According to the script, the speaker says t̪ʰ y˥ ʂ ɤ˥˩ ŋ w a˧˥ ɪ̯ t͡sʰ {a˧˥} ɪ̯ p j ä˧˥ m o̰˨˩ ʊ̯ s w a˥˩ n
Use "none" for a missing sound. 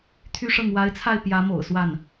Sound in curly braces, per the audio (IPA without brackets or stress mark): a˥˩